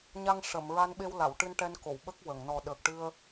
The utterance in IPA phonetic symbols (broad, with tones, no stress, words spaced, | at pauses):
ɲa˧ŋʂə˨˩˨m ɹa˧nɓe˧wla˨˩˨w ʈɨ˧nʈɛ˧nko˨˩˨w ɓə˦˥k̚wə˨˩˨ŋ nɔ˨˩ɗəː˨˩k̚ʈɨ˧ə̯